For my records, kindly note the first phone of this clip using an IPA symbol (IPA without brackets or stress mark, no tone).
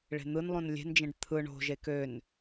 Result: ɭ